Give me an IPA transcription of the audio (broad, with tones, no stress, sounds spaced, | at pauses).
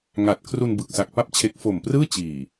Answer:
ŋ a˨˩ t̚ kʰ r u˧ n b ɯ˨˩ k̚ s a˨˩ k̚ p a˥˩ p̚ t͡ɕʰ e˦˥ k̚ f o˨˩ m p r ɯː˥˩ t͡ɕ iː˨˩